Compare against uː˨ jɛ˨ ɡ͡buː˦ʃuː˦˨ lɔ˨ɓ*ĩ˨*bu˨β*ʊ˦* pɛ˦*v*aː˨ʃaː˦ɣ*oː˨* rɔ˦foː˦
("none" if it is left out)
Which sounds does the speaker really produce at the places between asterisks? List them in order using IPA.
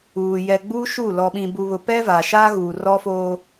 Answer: ĩ˨, ʊ˨, v, uː˨

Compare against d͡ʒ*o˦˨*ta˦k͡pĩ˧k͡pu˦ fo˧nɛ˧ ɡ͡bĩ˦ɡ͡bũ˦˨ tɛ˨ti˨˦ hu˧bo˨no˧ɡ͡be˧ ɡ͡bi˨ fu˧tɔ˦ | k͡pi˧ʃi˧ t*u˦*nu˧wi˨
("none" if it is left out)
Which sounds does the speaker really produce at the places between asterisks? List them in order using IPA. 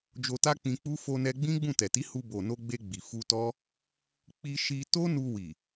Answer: o˧, o˦

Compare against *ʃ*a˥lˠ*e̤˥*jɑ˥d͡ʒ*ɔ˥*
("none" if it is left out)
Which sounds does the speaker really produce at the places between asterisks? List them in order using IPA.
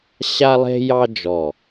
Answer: ɕ, e̤˥, ɔ˧˩

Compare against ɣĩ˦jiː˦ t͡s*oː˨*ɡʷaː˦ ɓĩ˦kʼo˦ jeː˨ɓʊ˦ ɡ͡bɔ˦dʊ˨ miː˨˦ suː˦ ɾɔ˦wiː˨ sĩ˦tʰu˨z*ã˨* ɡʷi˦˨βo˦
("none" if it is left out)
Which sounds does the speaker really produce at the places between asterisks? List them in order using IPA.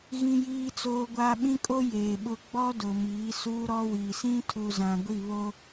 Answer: oː˦, ã˨

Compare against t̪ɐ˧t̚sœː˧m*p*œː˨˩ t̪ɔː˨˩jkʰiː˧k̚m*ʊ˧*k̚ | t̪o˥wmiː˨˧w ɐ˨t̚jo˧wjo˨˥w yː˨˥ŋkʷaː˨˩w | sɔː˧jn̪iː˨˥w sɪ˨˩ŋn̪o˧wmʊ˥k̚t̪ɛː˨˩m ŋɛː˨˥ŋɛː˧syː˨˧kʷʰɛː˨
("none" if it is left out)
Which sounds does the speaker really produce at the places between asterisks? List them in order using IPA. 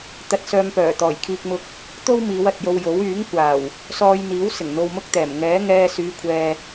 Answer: p, ʊ˧

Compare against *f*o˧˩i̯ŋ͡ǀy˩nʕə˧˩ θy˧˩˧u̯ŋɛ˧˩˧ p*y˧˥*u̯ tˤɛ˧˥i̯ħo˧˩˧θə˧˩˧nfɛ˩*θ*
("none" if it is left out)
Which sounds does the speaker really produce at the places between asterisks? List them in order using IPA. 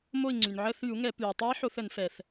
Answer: m, y˩, θ

